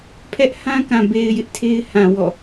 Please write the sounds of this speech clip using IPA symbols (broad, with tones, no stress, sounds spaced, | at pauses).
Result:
pʰ ɛ˦ ʔ h ã˦ k ã˨ b e˨ ɪ̯ j ɪ˦ ʔ tʰ e˦ ɪ̯ h ã˨ w ɔ̰˦˨